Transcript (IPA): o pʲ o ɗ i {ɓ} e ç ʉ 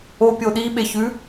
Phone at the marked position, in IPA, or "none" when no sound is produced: ɓ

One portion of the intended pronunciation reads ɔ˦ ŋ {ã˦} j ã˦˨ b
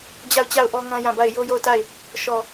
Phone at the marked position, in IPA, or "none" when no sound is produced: ã˦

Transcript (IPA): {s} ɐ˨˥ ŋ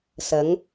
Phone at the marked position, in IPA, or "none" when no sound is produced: s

